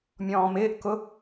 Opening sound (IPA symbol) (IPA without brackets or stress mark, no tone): mʲ